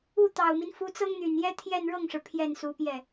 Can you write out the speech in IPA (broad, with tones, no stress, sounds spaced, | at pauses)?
u˥˩ t̪ ɑ˨˩ ʊ̯ m i˦ n f u˧˥ t͡s ɤ˥ ŋ n̪ y˨˩ n j ɛ˥ t̪ʰ j ɛ˥˧ n ɻ ɤ˥˩ ŋ ʂ ɻ̩˩ pʰ j ɛ˥˩ n s u˧˥ p j ɛ˥˩